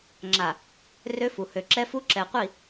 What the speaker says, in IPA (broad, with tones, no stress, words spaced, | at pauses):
ŋ͡ǁa˨ | rø˦fu˨ hø˨ǁɛ˦fu˦ ǁɛ˨qʷi˦˨